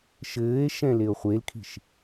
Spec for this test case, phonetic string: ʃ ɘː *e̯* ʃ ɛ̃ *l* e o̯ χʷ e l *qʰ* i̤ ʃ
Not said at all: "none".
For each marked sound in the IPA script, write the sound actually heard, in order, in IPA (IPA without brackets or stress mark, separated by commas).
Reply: e̯, l, kʰ